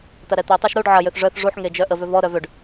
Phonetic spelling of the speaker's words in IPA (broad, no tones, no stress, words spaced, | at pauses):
tɐɾɛt̪itˤɛʃ ɾuɖ ʕɐjøθ ʐœθ ʐuħ ŋed͡ʒœʔəvʏ vɔɾœ vøɖ